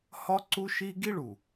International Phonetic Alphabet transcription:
hɒ˦ǀu˦ʃi˦ ɡi˦ɭu˨

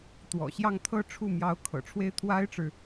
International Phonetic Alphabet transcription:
t̪wɔ̰˨˩ɕjɑ˥˧ŋ t̪ʰɤ˥˧ ʈ͡ʂʰu˥˩mjɑ˧˥ʊ̯ kʰɤ̰˨˩ʈ͡ʂʰwe˥ɪ̯ t̪ʰwa˥ɪ̯ʈ͡ʂɻ̩˨

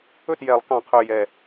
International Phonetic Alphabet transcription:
ɵ˥˩tjɛ˨˩˦lˠkɑ̃˨˩qʰø˨˩ jɛ˨˩

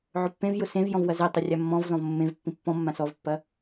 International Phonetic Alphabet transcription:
ʕʊpːẽvjʊ sẽv jɔ̃vwɐzetˤʊ rʲamːɔ̃vzɔ̃v mːẽv pːĩpːɔ̃mːã sɔvpːɐ

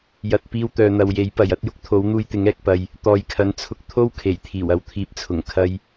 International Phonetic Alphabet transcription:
jɐ˧t̚ piː˧wt̪œː˨n̪ɐ˨wje˨˥j pɐ˨j ɐ˨˥t̚jʊ˥k̚ t̪ʰo˨˥wn̪uː˧j t̪ɪ˨˥ŋɛː˨k̚pɐ˨j | t̪ɔː˨jkʰɐ˨˥n t͡sʰʊ˧k̚t̪ʰo˥wkʰe˨˩j t̪ʰiː˨˩wɐ˨wt̪ʰiː˨p̚t͡sʰʊ˨˩ŋ kʰɐ˧j

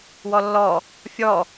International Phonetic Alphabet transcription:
wɔlːɔ | fʲɔ

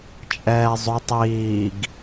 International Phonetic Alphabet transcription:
t͡ʃʼɛːzˤotˤ iːɡ

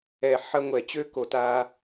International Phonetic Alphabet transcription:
ɛ˨ħɐ˧ ŋʷɛ˨ t͡ɕø˧ko˨ta˧

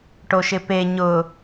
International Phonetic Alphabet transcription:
ʈoʃɪpe ɲʊ

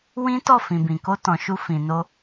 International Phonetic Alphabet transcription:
wĩ˦tɔ˦˨ fĩ˨bĩ˨ko˧ tɔ̃˨ʃu˧ fĩ˨no˧

